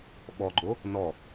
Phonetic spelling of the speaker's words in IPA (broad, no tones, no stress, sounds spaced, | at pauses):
ɓ ɔ ɡ͡ǃ o | n ɔ